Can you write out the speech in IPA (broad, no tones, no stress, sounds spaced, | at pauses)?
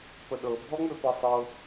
p ə ɗ ɤ bʱ ɔ ŋ͡m ø p ɤ sˤ ɤ